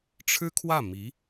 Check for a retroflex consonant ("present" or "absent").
present